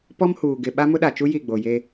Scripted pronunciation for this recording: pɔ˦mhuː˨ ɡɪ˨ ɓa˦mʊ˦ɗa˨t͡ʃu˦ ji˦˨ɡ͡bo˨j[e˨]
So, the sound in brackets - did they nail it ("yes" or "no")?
no